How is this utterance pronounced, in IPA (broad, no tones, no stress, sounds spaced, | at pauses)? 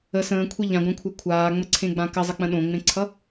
ə s ə̃ː kʷʰ e ʎ ã ɡʷ ã kʷʰ a kʷʰ aː ŋ͡m ə ǀʰ ẽ ɡ͡b ã k ə zˤ ə k͡p ə̃ ɗ õ ŋ͡m ẽ ǀʰ ʌ